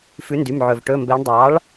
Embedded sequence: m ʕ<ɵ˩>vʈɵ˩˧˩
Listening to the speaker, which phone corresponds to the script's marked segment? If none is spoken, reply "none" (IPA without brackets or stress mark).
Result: ɵ˩